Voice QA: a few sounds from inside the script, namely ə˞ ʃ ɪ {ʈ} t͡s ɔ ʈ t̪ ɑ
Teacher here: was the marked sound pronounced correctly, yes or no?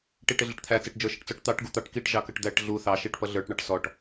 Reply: yes